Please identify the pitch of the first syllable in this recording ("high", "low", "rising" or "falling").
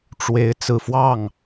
rising